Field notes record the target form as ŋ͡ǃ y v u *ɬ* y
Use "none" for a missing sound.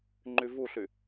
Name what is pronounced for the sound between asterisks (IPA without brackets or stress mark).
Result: ɬ